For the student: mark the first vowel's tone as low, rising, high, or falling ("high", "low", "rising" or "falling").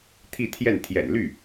falling